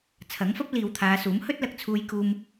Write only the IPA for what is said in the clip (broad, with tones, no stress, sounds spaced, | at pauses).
t͡sʰ ɐ˨˥ ŋ f ɐ˥ p̚ l iː˨ w t̪ʰ aː˨˧ s uː˨˥ m h ɵ˥ t̚ l ɐ˨ k̚ t͡sʰ uː˧ j k uː˧ m